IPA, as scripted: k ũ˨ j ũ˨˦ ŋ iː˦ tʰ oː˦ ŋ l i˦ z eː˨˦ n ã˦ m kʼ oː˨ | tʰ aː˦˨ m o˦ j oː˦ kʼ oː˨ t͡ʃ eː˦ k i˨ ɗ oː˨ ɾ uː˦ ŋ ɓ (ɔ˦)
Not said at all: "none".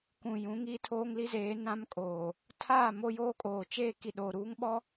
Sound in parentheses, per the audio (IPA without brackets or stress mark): ɔ˦